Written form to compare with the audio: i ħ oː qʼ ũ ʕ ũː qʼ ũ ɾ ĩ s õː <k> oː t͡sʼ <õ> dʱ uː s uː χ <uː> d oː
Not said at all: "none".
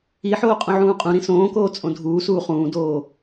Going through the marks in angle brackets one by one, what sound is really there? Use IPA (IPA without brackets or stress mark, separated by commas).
k, õ, ũː